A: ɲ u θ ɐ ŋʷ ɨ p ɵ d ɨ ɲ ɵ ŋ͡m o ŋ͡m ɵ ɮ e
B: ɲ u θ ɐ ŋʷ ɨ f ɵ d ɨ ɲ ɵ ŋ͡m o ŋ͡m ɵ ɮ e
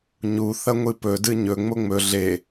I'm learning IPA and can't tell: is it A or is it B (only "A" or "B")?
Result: A